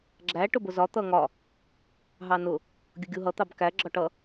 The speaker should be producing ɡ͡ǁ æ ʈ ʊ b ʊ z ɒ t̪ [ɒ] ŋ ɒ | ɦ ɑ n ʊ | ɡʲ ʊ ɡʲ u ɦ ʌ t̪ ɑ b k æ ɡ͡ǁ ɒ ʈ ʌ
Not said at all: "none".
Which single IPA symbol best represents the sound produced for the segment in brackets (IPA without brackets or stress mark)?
ʌ